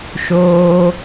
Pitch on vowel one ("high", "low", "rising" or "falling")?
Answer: high